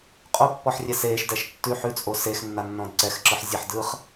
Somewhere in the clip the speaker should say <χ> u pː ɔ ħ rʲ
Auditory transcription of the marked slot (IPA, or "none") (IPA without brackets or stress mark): qʼ